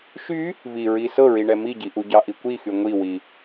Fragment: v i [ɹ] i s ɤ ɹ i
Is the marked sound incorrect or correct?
correct